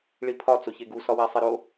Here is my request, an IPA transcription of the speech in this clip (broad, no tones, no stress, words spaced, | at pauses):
ɭipʰɒ t͡soçeɡu sɒwæsˤeɾo